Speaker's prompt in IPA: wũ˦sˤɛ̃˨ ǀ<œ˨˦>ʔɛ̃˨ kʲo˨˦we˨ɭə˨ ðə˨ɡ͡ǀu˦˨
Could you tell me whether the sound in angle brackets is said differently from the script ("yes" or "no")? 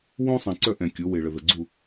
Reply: yes